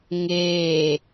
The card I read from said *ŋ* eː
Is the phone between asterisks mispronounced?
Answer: no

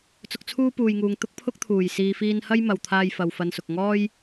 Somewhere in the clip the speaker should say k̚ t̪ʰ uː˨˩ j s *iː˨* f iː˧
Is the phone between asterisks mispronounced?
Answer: no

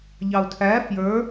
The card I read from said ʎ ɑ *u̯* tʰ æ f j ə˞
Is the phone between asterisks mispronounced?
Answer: no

